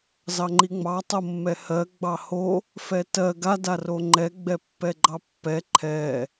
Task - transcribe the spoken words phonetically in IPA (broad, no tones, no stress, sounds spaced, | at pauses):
z ɑ ŋ͡ǃ i ŋ͡m ɑ tˤ o mː ɛ h ɜ ɡ͡b ɑ h o | f ɛ t ɜ ɡ a d a r o ŋ͡ǃ ɛ ɡ͡b ɛ pː ɛ ɡ͡ǃ ɑ pː ɛ ǃʰ ɛ